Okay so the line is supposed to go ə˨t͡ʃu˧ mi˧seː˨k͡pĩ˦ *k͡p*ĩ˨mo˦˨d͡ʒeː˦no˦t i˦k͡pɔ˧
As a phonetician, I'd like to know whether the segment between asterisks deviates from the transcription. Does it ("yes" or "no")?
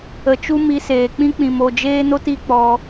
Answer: no